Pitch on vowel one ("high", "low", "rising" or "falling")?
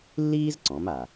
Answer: high